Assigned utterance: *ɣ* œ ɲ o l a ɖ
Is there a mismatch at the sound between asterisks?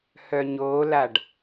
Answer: yes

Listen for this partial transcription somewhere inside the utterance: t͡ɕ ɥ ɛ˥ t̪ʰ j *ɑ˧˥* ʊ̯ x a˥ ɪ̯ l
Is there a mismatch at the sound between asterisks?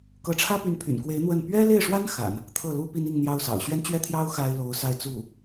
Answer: yes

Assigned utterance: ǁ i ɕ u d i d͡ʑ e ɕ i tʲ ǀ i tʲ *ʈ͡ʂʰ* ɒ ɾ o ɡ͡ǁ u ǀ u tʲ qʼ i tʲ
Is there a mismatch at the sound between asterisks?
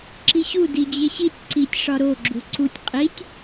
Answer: yes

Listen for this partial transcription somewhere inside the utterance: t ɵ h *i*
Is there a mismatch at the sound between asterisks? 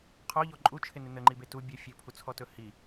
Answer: no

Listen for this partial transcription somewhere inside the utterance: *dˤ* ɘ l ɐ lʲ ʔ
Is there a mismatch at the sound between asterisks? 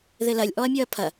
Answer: yes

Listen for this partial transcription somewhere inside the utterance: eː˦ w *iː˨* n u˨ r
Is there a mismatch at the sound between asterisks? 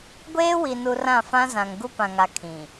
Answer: yes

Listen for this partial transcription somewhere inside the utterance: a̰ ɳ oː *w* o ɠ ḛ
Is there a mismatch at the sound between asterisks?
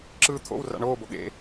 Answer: yes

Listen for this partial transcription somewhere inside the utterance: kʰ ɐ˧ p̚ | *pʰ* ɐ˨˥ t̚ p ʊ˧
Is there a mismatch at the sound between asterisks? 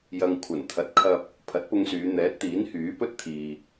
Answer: no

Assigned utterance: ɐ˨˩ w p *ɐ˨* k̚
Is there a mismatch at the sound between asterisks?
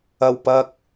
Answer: no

